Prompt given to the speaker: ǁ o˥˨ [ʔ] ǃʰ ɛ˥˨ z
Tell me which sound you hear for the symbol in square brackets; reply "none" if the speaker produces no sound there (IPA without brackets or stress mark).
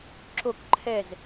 k